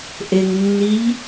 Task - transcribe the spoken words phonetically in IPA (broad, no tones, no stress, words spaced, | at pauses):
ʔeŋnːiʎ